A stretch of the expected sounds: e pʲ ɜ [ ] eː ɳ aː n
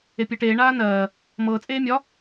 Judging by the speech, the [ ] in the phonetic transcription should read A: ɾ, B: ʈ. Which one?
B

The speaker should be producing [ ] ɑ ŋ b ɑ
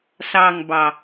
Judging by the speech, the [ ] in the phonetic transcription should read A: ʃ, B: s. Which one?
B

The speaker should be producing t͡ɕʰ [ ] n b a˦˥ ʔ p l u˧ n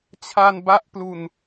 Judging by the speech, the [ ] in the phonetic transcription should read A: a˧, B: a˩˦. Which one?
A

